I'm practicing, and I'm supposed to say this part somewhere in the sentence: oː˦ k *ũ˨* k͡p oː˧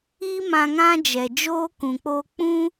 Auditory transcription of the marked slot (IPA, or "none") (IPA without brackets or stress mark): ũ˨